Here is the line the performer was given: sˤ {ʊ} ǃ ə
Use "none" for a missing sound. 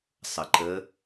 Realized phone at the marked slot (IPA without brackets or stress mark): ə